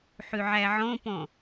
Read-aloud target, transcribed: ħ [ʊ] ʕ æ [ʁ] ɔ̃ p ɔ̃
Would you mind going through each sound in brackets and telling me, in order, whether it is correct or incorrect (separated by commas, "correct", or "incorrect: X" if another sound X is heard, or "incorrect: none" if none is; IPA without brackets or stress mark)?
incorrect: ʉ, incorrect: ʕ